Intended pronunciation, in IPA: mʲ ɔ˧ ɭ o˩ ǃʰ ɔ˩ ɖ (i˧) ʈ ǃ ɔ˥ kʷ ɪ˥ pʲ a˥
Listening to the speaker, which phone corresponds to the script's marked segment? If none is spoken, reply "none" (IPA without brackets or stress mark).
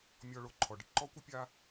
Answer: ɪ˧